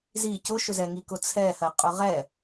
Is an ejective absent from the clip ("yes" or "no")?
no